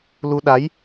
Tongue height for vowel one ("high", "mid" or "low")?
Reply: high